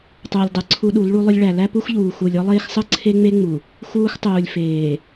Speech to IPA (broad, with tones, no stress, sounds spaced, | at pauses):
tˤ uː˨ lʲ dˤ ɯ˨ ǀʰ u˦ ɗ u˨˦ l ɭ u˦ lˠ ʏ˦ lʲ ɭ æ˨ l æ˦ p u˦ x ʎ uː˨ x u˨ lʲ ɔ˦ lˠ eː˦ x sˤ ɯ˦ ǀʰ e˦ ŋ͡m e˦ ŋ͡m u˨ | x uː˦ x tˤ uː˨ lʲ f eː˨